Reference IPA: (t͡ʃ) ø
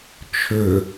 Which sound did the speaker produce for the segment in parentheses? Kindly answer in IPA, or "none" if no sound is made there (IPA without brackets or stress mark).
t͡ʃʰ